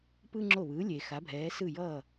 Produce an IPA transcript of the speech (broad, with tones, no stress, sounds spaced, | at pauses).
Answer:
p ɯ˧ ŋ͡ǁ o˧˩ β ɯː˩˧ lʲ e˩ x a˩˧ bʱ ɛː˩˧ s ɯ˧˩ j ʌː˧˩